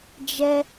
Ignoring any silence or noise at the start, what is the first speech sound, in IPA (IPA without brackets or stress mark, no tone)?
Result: d͡ʒ